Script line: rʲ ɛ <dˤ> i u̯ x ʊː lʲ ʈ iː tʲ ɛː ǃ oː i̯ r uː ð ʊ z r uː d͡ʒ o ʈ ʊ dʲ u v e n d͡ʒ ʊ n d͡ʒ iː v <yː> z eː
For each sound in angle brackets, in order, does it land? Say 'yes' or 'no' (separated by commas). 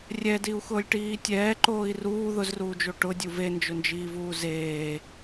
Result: no, no